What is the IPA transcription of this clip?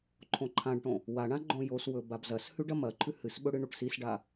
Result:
ǃʰõǃʰãɖʈõ | waɳã ɡ͡ǃõjoswɵ babzɐshʉɖ ɐmɐǃʰʉ hɨsɓɵ ɽɨɳuʈsisɖa

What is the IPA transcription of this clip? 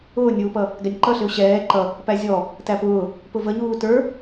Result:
ʊːnʲuːpʌ | ɡænʲǃʌɬɪʊ̯ ɕɛː ǃʌ | pæzʲɔ | tæpʊː | pʊvəɲuː tə˞

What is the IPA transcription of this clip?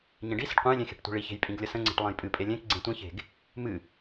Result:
ɲẽɖisə̤ɖ qʷẽjlʲẽ xe̤ʈtʷi̤ɭiçe̤j pʼĩɡlʲəsə̃ŋ͡ǀe̤ʈ lˠẽjpʼɨpʼe lʲẽk ɡ͡ǀẽtʷĩçe̤ɡ | mɨ

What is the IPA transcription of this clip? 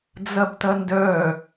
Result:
d͡zɐbtɐndœ

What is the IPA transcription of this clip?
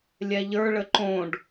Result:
lʲɛʎə˞ ɭəǃõɖ

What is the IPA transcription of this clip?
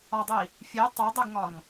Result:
ɒdˤi | fʲe tˤodˤeɡŋɒŋ

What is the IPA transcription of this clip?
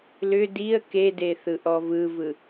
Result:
lʏ diə̯ kede θɯʔɔvɯvɯ

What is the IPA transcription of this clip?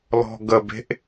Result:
lɔ̤ɡəbe̤ʔ

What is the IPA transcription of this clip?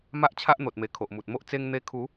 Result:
ma˦ʔt͡ɕʰa˦ʔn̪o˨t̚me˨˩ kʰo˨ʔmu˨t̚mo˦ʔ t͡se˧ŋn̪e˧kʰu˨˦

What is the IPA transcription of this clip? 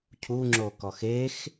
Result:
cʰuŋ͡ǁokɔx ex

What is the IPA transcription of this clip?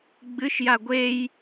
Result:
ɡ͡bɨʃja ɡʷej

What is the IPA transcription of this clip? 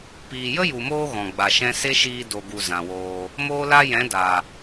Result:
piː˨jə˦ju˨moː˧ ɣɔ̃˨ɡ͡ba˨ʃɛ̃˦ se˦ʃiː˧ do˨ɡu˨ zã˨woː˧ | moː˦la˦ jɛ̃˨˦da˨

